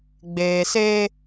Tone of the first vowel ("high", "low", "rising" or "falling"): low